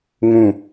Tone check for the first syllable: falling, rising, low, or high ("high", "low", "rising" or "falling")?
falling